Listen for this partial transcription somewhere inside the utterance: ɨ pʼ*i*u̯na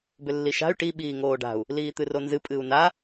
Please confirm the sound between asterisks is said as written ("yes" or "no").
no